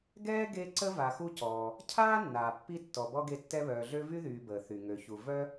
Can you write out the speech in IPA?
ɡ ɛː˥ ɡ e˦ ǀ ə˥ v a˨ x u˦ c ɔː˩ | cʰ aː˥ nː aː˩ pː i˥ tː ɔ˨ b ɔ˥ ɡ e˦ tː ɛ˦ β œː˨ ɮ ø˥ v y˥ ð yː˨ b əː˩ θ y˩ ŋ ø˨ ç u˨ v œ˥

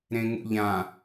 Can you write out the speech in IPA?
ɾ ẽ ŋ ṵ ʎ ã

